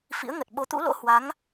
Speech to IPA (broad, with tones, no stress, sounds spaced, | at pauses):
f ḭ˧˥ ə̯ ŋ ə˨˩ t̚ ɓ o˨˦ t̪ ṵ˧˥ l o̰˧˥ h w a˨˦ ŋ